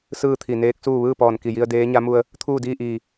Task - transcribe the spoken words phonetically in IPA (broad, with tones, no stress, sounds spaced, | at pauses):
s ɯː˥˨ t̪ʰ i˧˩ n eː˧˥ k̚ s uː˥˨ ʋ ɯː˥˨ p ɔː˧˩ n k i˧˩ j i˧ ə̯ d eː˧˥ ɲ a˧˥ m u˧ ə̯ | t̪ʰ uː˥˨ d iː˥˨ ʔ iː˧˩